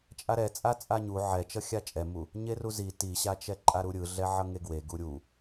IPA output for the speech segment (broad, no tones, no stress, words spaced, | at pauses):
t͡ʃʼaɾɛt͡sʼa t͡sʼaɲu ʕɛt͡ʃʌxʲa t͡ʃʼɛmu | ɲeruzi tiɕat͡ʃɛ ǃʼaɾuɾʲɯɮɛ ʕʌŋeɡwe ɡuɾʲu